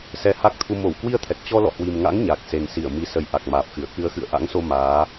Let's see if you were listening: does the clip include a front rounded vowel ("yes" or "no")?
no